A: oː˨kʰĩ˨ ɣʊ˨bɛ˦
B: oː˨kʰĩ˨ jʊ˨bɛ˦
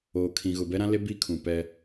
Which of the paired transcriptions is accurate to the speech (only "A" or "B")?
A